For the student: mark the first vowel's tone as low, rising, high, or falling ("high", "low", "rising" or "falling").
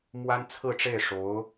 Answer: high